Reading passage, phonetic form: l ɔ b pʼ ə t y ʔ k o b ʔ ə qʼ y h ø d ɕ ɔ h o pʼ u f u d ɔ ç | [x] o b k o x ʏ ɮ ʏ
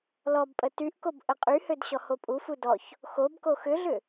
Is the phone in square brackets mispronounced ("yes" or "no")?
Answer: no